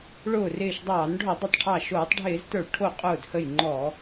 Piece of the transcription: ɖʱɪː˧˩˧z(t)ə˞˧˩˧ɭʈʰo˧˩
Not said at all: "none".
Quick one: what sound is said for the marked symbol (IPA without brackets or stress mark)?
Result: t